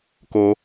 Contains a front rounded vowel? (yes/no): no